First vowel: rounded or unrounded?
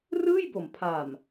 unrounded